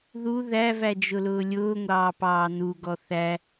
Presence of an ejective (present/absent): absent